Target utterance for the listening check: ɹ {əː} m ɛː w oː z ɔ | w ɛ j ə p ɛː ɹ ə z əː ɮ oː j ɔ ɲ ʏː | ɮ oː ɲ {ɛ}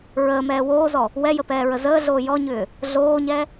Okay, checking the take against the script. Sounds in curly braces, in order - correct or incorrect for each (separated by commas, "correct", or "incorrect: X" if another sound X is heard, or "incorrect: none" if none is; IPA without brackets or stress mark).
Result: correct, correct